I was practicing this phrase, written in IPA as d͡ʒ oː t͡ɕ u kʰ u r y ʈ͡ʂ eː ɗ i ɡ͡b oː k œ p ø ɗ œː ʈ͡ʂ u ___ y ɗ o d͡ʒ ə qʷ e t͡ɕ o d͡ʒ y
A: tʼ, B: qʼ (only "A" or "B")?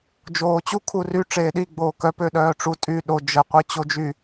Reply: A